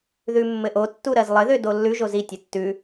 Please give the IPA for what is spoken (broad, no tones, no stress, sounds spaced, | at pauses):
ð ʉ mː ɘ ʔ o tː u ɾ ɜ z lˠ ɘ ð ø d o lː ʉ ʒ o z i tʲ ɘ tː ʉ